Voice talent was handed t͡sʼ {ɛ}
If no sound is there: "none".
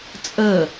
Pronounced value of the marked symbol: ə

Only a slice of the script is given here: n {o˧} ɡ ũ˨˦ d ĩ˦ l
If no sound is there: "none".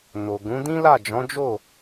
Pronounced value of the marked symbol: o˨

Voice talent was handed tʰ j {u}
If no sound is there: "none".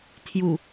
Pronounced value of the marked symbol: u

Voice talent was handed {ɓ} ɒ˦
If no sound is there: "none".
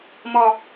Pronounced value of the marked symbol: m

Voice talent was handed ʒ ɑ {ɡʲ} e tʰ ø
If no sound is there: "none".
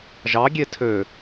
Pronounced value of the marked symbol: ɡʲ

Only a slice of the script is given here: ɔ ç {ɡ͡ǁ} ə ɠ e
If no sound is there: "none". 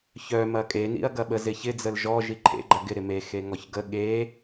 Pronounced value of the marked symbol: ɡ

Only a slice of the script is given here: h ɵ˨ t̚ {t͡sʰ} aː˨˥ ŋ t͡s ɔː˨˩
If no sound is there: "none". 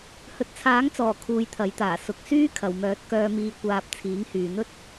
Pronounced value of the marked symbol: t͡sʰ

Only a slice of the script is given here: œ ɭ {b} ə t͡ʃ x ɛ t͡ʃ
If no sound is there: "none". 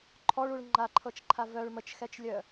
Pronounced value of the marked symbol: m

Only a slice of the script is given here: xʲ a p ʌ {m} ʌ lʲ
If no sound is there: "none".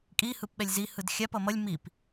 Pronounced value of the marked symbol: m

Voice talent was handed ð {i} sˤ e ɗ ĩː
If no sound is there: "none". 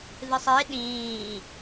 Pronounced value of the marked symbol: ɨ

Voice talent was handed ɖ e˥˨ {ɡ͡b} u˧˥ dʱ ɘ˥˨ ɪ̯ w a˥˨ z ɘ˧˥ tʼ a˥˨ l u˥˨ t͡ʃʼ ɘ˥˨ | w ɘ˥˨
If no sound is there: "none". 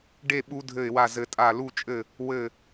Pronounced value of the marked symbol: ɓ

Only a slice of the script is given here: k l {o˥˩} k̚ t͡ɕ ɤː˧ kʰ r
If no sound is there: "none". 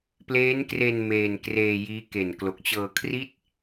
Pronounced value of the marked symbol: o˨˩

